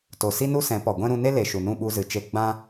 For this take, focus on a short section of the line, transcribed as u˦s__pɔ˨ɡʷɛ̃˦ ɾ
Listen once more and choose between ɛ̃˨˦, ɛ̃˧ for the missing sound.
ɛ̃˨˦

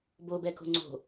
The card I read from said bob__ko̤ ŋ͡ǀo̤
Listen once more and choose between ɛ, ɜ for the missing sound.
ɛ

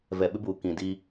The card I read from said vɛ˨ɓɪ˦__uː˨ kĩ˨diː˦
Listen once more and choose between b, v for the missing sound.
b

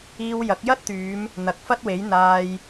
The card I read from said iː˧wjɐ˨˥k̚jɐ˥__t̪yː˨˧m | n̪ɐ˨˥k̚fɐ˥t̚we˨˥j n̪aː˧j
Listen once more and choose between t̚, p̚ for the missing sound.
t̚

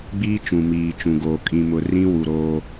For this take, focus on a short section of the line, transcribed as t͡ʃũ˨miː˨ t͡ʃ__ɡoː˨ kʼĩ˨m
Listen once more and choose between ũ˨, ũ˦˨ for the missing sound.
ũ˨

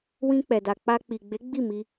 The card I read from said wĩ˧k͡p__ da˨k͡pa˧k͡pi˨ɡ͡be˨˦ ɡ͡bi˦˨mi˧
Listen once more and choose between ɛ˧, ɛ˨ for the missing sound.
ɛ˨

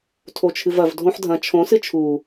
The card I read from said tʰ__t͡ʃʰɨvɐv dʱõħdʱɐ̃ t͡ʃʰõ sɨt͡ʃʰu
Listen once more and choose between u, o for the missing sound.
o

